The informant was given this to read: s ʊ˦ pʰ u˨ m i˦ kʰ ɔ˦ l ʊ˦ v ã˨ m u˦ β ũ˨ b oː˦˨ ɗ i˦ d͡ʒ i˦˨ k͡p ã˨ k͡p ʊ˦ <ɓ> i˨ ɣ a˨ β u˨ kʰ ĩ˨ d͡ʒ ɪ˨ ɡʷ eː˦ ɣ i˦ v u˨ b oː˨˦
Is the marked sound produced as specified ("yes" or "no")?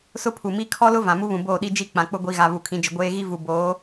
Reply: no